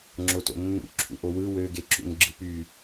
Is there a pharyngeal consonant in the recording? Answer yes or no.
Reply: no